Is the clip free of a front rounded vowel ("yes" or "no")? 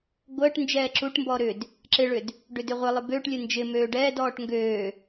no